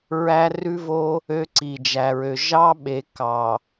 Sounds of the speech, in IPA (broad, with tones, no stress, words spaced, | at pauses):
ɹæ˦rʉ˦vo˦ | ø˦ǀi˨d͡ʒæ˨ɹø˨ ʒɑ˦ɓe˨ kɑ˨